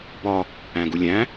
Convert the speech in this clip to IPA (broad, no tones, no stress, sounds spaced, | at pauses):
b ɒ | æ̃ ɡ u lʲ æ̃